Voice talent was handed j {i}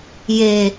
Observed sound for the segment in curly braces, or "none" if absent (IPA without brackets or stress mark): e